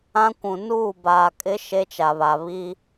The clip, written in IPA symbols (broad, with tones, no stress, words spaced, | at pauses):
ã˦kʷũ˨ nuː˦˨baː˨kʼɪ˦ ʃe˦t͡ʃa˨βa˨ βi˦